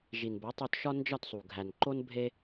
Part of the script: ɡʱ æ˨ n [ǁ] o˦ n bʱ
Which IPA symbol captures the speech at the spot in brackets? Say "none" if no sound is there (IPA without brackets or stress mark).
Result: ǃ